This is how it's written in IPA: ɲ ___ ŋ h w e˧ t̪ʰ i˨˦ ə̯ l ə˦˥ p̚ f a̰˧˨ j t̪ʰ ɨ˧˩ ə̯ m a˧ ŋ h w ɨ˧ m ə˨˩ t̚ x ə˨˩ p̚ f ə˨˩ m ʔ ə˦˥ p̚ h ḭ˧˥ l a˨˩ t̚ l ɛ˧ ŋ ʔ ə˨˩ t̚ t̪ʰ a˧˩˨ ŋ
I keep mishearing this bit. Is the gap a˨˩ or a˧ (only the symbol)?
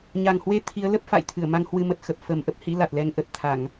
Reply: a˨˩